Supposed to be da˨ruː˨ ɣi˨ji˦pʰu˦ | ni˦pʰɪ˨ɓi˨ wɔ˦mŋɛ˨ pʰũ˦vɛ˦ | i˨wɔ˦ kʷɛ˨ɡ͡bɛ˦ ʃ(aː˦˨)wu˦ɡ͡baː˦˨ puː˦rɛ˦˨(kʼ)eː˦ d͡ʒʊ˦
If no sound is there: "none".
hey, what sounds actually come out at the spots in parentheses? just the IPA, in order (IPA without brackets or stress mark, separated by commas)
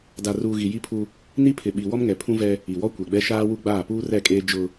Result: aː˦, kʼ